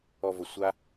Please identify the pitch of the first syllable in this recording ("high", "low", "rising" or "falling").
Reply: low